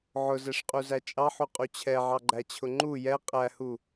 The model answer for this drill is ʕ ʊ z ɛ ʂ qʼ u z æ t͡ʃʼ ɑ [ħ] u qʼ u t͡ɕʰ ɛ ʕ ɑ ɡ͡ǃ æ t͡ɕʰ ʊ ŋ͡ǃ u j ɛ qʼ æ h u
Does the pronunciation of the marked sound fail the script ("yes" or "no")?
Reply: no